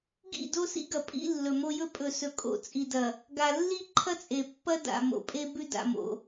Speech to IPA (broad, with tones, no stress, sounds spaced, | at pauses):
ɡ ḭ˦˨ d o˦ s ḭ˦ ɡ ɐ˨ pʼ ḭ˦ lː ɵ˨ m o˦ j ɵ˦ pʼ ɵ˨ s ɵ˨ kʼ o̰˨ t͡sʼ i˨ d ɐ˨ | ɡ a˨ lː i˦ ǃʰ ɐ˦ t͡sʼ e˨ pː ɐ˦ d a̰˨ m o̰˨ pʼ e˦ b ʉ˦ d a̰˨ m o̰˨